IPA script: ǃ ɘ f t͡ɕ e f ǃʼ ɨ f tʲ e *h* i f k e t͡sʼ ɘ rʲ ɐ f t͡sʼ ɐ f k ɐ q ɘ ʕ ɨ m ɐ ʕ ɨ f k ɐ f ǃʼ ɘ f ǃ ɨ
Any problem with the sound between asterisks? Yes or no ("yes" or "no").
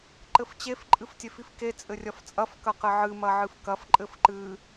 yes